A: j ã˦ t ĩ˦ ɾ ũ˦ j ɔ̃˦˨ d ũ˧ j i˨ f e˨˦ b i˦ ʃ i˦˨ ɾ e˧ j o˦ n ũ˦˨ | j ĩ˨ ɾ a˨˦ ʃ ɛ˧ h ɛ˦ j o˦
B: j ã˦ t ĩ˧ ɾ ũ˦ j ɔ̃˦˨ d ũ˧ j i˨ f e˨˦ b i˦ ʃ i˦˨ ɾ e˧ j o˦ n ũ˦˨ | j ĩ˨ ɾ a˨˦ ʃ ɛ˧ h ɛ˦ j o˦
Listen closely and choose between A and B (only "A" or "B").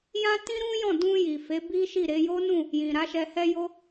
A